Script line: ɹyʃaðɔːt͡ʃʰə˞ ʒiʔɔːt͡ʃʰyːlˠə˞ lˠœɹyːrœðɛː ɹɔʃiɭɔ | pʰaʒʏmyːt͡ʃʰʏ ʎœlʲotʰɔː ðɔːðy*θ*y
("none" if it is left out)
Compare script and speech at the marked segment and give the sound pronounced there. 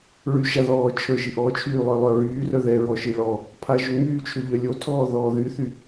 θ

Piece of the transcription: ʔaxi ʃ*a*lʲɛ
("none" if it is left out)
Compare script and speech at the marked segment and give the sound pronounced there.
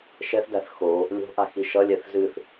ʌ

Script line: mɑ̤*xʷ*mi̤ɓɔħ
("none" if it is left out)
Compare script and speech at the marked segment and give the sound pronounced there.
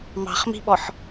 χ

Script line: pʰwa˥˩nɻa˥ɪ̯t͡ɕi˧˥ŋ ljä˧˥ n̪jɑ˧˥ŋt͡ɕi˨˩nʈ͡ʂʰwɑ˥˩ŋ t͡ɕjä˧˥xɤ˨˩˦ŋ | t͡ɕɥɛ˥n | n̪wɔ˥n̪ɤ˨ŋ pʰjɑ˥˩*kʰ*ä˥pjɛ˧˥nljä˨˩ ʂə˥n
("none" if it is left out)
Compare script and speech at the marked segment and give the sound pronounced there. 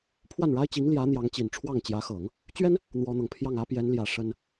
ŋ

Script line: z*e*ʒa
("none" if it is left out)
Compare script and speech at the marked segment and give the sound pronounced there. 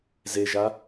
e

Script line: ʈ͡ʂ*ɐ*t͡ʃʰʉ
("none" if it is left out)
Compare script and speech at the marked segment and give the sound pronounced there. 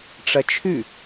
ɐ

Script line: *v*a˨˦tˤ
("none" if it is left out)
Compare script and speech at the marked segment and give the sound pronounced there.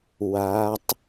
w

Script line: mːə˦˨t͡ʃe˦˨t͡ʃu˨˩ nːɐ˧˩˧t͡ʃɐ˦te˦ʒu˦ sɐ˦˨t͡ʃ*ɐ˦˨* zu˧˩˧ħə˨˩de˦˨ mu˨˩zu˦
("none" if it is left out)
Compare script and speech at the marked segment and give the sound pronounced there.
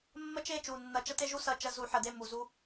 ɐ˦˨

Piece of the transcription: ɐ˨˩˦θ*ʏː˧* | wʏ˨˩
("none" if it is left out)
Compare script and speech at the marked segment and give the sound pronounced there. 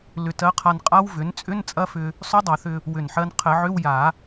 ʏ˧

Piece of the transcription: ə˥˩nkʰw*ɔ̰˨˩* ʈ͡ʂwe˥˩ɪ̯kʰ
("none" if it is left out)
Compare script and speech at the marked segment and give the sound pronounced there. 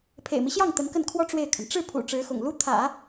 ɔ˥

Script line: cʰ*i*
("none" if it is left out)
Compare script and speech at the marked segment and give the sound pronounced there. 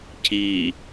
i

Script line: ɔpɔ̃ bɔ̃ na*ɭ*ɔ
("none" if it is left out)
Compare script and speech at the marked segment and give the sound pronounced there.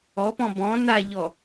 ʎ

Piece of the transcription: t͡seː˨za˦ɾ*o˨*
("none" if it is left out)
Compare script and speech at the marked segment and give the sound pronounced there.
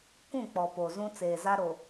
o˨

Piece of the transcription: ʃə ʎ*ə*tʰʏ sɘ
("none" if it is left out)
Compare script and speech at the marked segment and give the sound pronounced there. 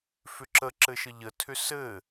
ə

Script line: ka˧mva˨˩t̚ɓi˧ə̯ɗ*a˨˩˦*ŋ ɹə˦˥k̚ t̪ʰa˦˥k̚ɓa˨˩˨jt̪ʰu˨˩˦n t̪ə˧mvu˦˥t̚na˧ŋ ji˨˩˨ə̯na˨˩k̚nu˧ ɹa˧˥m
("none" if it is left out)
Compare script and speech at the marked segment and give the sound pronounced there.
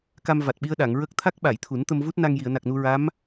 a˨˩˨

